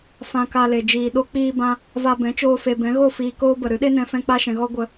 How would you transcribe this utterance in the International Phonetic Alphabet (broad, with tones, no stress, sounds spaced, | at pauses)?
f ã˧ k a˧ l e˨ d͡ʒ iː˨ ɗ o˦ k͡p iː˧ b ã˧ | v a˧ b ɛ̃˨˦ t͡ʃ oː˧ f e˨ b ɛ̃˨˦ ɣ o˦˨ f iː˧ k oː˦ b ə˨ ɾ ɨ˨˦ ɗ e˦ n ɛ̃˧ f ɛ̃˧ k͡p a˧ ʃ ɛ̃˨ ɣ ɔ˧ ɡʷ ə˦˨